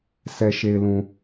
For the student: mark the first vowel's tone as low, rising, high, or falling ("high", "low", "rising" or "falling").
low